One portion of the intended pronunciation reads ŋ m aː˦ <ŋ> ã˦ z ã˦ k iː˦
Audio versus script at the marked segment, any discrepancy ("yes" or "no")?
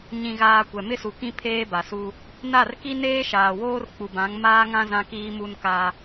no